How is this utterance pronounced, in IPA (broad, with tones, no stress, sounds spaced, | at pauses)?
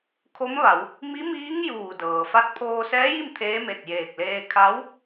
kʰ o˧˥ m ʋ a˩˧ w | m i˧˥ m iː˧˥ ŋ j uː˧˩ d ɤː˩ f a˧ t̚ pʰ oː˧ s ɛː˧˥ j i˥˨ m t̪ʰ eː˧˥ m e˧˩ t̚ j eː˧˩ k̚ l eː˧ kʰ a˧˥ w